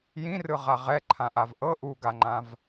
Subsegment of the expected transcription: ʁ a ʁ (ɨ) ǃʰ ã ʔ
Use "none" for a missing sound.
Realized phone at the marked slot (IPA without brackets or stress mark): ɛ